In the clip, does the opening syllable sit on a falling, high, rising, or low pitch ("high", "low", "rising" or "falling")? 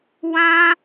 high